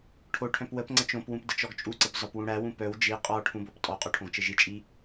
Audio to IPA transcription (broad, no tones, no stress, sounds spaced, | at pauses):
ʈʰ o ʈʰ œ̃ p w ə p ŋ͡ǀ ə t͡ʃ õ p w ũ p d ə t͡ʃ ɔ ɡ t͡ʃʼ u ǀ ə p z ɒ p w ũ ɽ æ w ũ p œ w d͡ʒ i qʼ ɒ ʈʰ ũ b o p tʼ ɔ qʼ o ʈʰ õ ɡ t͡ʃ ɘ ʒ i t͡ʃʼ i